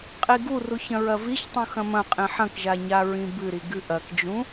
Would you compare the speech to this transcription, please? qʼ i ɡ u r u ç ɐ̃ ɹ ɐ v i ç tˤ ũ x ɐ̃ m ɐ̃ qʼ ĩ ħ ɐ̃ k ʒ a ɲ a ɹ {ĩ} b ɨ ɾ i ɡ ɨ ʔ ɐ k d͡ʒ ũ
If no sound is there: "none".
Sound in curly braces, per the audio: ĩ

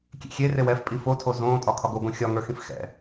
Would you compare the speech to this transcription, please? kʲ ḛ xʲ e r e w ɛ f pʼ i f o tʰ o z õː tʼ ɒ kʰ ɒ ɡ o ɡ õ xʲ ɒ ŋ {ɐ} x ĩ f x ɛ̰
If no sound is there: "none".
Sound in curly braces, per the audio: ə˞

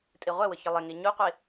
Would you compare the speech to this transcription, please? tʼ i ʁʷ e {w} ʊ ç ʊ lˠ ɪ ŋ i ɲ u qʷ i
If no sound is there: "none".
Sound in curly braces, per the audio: w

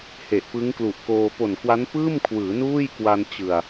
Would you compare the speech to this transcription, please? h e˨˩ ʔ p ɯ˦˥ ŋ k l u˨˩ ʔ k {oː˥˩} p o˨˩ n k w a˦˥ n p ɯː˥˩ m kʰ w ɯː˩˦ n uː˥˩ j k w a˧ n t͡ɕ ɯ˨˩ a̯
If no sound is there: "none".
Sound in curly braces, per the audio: oː˧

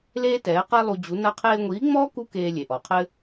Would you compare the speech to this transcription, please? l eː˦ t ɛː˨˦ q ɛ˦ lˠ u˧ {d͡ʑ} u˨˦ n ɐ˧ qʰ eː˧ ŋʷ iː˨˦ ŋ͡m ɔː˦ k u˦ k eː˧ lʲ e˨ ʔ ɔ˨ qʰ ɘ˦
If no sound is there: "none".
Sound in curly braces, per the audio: d͡ʑ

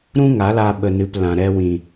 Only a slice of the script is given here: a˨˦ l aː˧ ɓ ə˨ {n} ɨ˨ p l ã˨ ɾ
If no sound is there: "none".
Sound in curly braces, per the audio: n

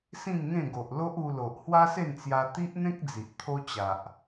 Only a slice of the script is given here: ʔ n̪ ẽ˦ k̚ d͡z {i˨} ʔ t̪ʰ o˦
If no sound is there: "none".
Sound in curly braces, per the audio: i˨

